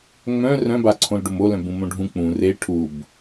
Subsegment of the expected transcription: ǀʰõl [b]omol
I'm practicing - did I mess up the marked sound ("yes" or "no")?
yes